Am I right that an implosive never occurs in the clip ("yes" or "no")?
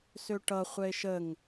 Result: yes